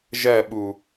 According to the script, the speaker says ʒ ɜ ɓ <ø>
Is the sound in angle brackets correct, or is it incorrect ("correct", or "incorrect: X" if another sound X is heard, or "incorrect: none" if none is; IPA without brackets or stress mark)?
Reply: incorrect: u